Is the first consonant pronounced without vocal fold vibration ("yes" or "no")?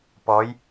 yes